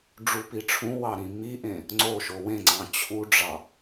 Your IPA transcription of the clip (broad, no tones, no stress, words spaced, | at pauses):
ɖ͡ʐupiʈ͡ʂʰũwɑ ɾĩmiʔẽ | ŋ͡ǀoʃo wẽŋ͡ǀɑ̃ t͡ɕʰuɖ͡ʐɑ